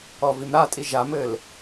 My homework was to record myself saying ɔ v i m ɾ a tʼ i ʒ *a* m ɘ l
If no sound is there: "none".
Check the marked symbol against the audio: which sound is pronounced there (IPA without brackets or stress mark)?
a